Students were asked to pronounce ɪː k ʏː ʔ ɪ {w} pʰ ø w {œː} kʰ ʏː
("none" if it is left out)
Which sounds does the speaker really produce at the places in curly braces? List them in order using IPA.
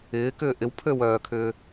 w, œː

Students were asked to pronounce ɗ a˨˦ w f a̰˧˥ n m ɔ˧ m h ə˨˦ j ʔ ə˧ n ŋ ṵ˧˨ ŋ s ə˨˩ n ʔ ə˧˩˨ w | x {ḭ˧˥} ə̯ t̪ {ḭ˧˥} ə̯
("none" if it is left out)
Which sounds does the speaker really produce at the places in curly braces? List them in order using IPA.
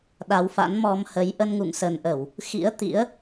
ḭ˧˥, ḭ˧˥

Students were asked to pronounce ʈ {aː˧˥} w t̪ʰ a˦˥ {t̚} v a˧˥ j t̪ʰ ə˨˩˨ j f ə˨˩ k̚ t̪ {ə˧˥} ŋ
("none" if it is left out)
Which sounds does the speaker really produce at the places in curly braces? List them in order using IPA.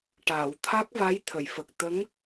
aː˨˩˨, k̚, ə˧˥

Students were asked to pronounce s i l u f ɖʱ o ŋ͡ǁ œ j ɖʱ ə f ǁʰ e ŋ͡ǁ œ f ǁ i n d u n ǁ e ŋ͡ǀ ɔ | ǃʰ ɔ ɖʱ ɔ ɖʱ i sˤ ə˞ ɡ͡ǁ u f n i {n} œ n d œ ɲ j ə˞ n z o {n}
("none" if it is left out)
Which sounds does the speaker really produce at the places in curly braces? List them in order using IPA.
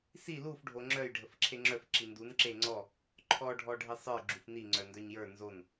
ŋ͡ǀ, n

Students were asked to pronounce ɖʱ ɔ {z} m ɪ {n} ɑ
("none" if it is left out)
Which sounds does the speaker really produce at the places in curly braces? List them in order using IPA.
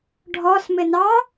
s, n

